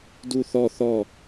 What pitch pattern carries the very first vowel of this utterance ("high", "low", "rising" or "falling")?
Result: falling